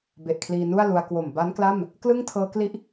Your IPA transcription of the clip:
b e˨˩ ʔ kʰ l iː˧ n u˥˩ a̯ l u˧ a̯ k w o˨˩ m b a˦˥ n k l a˥˩ m | k l ɯ˥˩ ŋ tʰ ɤː˦˥ k l i˥˩ ʔ

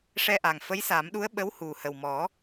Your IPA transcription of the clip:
ʂ ɛ˧ ʔ a˨˩ ŋ f ə˧˥ j s a˨˩˦ m ɗ u˧˥ ə̯ ɓ ə˧˥ w h u˨˩ h ə˨˩ w m ɔ˨˩˦

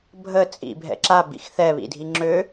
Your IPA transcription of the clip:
bʱ ə t͡sʼ ḭ bʱ ɛ̰ ǁ a b ḭ x θ ɛ β ḭ dʱ i ŋ͡ǁ ø

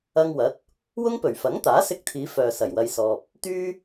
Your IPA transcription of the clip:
ɐ˧ ŋ w ɐ˨˥ t̚ | w ʊ˥ ŋ p ɵ˨˩ ɥ f ɐ˨˥ ŋ t̪ aː˨˥ s ɪ˧ k̚ t̪ʰ iː˨˧ f œː˨ s ɐ˨˩ j w ɐ˧ j s ɔː˧ p̚ | t̪ yː˥

